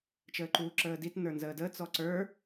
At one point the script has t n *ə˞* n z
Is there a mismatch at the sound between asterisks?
no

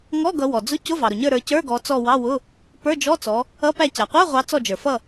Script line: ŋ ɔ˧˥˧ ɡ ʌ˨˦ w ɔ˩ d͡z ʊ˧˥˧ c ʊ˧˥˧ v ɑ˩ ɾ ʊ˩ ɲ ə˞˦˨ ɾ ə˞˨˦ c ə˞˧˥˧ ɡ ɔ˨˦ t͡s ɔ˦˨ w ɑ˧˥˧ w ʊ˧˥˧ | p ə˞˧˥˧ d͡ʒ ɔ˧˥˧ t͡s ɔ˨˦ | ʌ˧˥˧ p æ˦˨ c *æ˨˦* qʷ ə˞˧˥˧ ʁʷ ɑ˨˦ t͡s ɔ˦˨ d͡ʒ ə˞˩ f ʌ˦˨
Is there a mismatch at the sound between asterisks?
yes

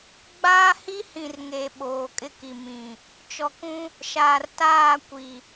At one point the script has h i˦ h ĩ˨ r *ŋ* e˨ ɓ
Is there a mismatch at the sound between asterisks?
no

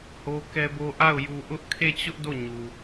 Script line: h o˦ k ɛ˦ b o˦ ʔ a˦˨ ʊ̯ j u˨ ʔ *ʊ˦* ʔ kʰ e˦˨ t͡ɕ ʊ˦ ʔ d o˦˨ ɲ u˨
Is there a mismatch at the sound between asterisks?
no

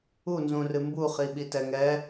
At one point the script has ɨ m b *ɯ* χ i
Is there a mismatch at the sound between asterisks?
yes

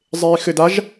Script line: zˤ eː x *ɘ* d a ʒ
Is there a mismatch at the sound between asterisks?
no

